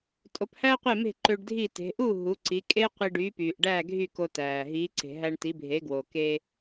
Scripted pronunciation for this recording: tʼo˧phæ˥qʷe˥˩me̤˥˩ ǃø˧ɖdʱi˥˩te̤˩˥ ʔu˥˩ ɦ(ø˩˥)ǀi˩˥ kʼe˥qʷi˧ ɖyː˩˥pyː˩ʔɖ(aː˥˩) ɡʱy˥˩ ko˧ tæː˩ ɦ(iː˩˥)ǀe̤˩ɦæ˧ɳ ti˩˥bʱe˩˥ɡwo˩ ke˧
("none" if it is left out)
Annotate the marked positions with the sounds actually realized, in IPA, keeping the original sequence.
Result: u˩˥, æː˥˩, iː˩˥

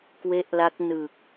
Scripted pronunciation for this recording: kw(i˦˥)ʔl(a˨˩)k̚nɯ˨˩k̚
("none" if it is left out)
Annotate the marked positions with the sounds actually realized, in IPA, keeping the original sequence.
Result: e˦˥, a˦˥

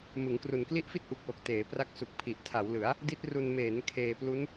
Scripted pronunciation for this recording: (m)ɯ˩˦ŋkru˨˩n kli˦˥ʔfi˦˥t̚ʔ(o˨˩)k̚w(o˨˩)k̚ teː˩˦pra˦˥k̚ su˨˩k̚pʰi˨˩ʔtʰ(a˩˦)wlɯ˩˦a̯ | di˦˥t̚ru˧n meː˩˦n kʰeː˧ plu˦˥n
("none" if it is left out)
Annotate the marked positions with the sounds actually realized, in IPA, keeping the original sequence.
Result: m, u˨˩, o˨˩, a˩˦

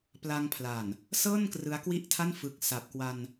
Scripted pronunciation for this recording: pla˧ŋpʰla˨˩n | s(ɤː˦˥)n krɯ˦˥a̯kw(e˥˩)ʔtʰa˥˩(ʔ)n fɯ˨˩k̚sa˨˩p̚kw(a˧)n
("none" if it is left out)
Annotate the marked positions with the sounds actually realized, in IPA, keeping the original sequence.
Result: ɤː˥˩, i˥˩, none, a˧

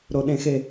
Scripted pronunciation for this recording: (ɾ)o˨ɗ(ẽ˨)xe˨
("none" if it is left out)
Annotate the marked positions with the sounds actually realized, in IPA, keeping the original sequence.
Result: ɾ, ẽ˨

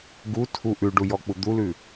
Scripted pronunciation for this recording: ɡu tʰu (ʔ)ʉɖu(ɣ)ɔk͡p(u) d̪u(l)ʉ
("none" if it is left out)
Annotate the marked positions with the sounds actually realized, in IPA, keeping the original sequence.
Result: ʔ, j, u, l

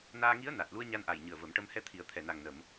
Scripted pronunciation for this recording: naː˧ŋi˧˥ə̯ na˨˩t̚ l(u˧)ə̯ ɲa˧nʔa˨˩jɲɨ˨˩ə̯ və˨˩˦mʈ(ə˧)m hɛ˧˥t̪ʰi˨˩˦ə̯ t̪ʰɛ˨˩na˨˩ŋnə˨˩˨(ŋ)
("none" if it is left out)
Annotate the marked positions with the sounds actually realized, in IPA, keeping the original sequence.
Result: u˧, ə˧, m

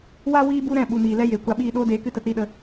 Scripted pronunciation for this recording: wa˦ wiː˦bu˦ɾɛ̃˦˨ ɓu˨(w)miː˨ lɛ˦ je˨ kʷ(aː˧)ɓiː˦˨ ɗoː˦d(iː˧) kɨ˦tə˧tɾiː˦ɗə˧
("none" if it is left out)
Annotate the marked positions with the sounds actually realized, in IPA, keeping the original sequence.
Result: none, a˧, eː˧

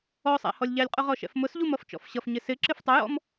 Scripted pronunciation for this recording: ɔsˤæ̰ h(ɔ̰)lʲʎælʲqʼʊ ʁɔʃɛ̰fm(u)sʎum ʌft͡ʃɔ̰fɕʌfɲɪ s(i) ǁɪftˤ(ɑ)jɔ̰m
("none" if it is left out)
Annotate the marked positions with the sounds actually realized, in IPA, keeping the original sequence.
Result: ɔ, ʊ, ɪ, ʌ

